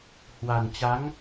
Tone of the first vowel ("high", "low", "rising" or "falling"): low